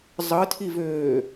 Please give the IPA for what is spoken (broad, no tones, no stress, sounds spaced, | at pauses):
zˤ ɯ tʰ i v øː